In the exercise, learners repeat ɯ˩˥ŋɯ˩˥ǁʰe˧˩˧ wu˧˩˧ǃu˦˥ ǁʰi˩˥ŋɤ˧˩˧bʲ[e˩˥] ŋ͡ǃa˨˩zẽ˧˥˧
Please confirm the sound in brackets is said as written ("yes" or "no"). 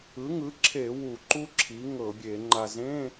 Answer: no